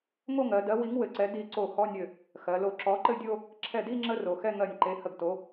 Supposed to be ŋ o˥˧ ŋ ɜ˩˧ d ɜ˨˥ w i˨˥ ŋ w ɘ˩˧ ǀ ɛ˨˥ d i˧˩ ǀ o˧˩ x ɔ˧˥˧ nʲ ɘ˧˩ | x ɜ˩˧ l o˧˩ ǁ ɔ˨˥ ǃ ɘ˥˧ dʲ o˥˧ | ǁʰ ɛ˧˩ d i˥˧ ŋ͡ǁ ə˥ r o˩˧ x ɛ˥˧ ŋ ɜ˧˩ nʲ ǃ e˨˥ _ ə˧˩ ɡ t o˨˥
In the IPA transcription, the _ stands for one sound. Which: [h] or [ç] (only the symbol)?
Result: h